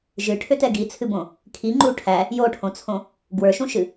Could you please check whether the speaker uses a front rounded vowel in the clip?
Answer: yes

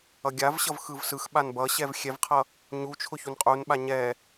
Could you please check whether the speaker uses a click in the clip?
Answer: no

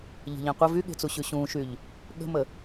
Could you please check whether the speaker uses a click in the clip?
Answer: no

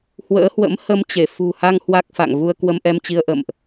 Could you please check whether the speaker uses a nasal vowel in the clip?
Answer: no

